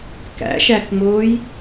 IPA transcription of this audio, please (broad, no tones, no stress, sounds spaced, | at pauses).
k æ̰ ʃ æ k ŋ͡m oː j